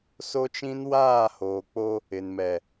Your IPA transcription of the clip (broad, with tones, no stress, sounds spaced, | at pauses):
s o˦ t͡ʃ ĩ˦ n w aː˦˨ h oː˨ k͡p o˦ | ɪ˨ n m ɛ˨